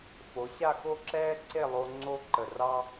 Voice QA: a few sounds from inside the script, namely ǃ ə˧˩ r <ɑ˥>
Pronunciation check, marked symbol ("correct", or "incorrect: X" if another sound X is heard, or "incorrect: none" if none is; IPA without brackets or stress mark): correct